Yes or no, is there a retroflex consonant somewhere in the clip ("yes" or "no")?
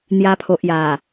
no